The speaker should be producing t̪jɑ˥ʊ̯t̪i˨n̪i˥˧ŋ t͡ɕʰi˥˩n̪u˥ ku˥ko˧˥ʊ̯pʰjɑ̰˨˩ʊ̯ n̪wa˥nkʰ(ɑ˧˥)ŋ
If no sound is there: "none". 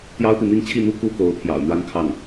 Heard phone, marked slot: ɑ˥˩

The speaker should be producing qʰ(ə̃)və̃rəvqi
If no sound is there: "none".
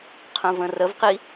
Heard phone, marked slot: ə̃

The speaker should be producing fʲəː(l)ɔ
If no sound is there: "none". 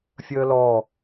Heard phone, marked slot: l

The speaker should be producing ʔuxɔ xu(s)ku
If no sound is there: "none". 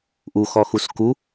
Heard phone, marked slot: s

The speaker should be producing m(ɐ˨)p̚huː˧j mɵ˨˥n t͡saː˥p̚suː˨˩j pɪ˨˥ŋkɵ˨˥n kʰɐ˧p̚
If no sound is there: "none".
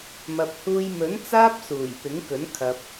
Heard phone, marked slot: ɐ˨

